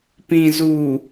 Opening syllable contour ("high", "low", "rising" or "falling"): low